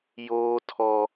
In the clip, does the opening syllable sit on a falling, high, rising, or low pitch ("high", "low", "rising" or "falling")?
high